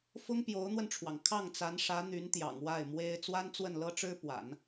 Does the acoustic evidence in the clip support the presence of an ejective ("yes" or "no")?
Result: no